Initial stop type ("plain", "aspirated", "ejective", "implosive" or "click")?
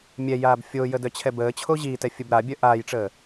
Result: plain